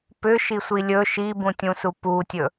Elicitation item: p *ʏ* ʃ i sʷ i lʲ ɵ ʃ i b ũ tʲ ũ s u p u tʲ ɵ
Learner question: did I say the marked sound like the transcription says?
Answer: yes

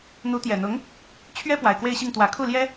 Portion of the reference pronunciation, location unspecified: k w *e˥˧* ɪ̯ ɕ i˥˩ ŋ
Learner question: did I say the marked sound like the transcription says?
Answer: yes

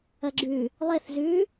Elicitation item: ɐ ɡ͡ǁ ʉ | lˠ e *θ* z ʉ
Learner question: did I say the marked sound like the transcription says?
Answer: yes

